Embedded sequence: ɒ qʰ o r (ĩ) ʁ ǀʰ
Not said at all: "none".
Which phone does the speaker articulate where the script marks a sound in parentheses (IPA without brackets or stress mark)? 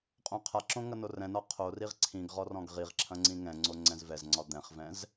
i